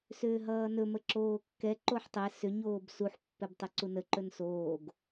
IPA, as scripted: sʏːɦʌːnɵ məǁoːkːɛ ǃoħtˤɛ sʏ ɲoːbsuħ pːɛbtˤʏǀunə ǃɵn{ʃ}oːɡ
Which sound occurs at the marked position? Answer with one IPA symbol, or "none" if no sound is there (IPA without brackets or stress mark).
s